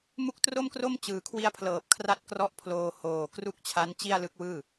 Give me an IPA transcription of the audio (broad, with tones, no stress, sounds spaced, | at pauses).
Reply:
m u˦˥ k̚ t r o˥˩ m k r o˥˩ m t͡ɕ ɯː˨˩ kʰ w i˦˥ a̯ pʰ l ɤː˨˩ p̚ kʰ r a˦˥ t̚ k r ɔ˦˥ ʔ pʰ l oː˧ h oː˨˩ k r u˥˩ k̚ t͡ɕʰ a˦˥ n t͡ɕ i˥˩ a̯ l ɯ˦˥ k̚ w ɯː˥˩